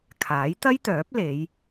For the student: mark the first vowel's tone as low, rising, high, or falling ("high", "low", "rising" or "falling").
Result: rising